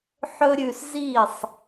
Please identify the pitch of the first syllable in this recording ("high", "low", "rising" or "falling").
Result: high